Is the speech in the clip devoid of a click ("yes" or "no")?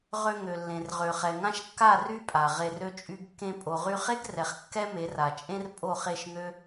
yes